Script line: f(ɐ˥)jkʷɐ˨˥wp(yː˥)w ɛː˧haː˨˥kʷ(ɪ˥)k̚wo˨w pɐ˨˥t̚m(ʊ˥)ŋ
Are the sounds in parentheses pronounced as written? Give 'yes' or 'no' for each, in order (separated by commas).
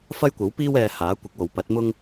yes, no, no, yes